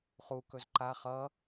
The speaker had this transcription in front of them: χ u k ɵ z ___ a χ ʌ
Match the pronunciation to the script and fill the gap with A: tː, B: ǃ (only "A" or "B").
B